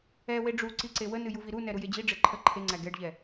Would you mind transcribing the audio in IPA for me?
ɛwe ɖ͡ʐu ǀiǀewənɨ juviɾunɛ ɾujed͡ʑiɖ͡ʐe ǃʰə ǃʰeŋ͡ǀæ ɡɛɖʎɛ

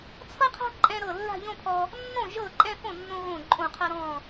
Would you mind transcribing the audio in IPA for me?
t͡sʰɤ˥qʰa̤˥ ǃʼɛ̃˧ɾɤ˧˩ lːa̤˥˧ʎõ˥˧pʰɔ˧ | nːõ˥˩ ʒɤ˥˩ǃʼɛ̃˥˧ fõ˥˩nːõ˧ɣõ˧˩ ǃʼõ˧˩qʰɤ˧ ɾɔ̃˧˩

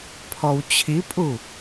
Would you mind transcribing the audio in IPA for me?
pʰɔwt͡ɕʰipʼu

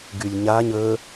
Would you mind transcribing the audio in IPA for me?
ɡylʲɲaɲ ə

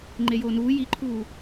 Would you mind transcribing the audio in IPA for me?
ŋ͡ǃejoːnuː jiǃʰuː

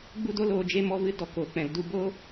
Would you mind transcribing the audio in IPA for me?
ɡ͡bu˦do˦ loː˧d͡ʒe˦ mɔ˧vɨ˧ dɔ˨ koː˨k͡pɛ̃˨l du˦˨ bo˦

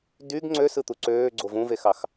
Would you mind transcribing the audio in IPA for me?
dyɡ ŋ͡ǀøsɯt̪u ǀøː ɡ͡ǀovũvexɑx

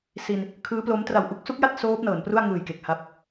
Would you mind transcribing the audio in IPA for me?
si˧n | kʰɯː˦˥plo˦˥m tra˨˩wʔu˦˥k̚su˦˥k̚ja˥˩t̚ soː˦˥p̚nɤː˩˦npru˥˩a̯ ŋɯː˨˩jke˨˩k̚ ha˦˥p̚

